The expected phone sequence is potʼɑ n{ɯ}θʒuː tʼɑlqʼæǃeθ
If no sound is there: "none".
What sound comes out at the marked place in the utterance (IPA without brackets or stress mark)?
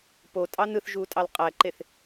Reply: ɯ